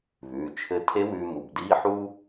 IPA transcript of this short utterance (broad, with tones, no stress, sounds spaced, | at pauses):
β ʉː˩˧˩ t͡ʃʰ ɘ˧˥ tʰ e˧˥ w ʉː˧ m u˩˧˩ b d iː˧˥˧ ħ u˥